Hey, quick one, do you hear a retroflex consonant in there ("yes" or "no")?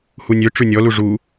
yes